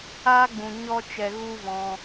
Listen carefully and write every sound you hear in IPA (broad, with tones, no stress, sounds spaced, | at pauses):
aː˦ ɡ͡b ũ˨ ɲ ɔ˧ t͡ʃ ɛ˨ ɣ u˦ v ɔ̃˧